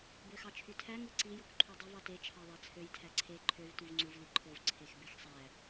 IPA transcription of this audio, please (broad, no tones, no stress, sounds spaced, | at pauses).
b ø x ɑ t͡ʃʰ y tʰ æ ŋ ɯ ǀ i j o k ǃʰ y dˤ ɯ v ɑ t e t͡ʃʰ ɑ ðˤ æ t͡sʰ ø j tʰ æ ǀʰ e ǃʰ ø v t y v ŋ͡ǀ u v l i ǃʰ o v ǀʰ e x b e x sˤ æ